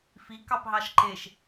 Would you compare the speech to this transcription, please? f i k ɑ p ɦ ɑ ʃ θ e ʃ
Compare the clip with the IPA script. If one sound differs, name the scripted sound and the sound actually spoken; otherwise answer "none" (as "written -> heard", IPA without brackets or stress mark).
θ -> ǃ